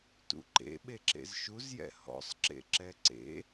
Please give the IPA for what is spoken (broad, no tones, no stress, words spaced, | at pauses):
tṵǃḛ ɓeǁḛzʃuz jɛ̰hɔ̰sˤ ǁḛǁɛǀḛ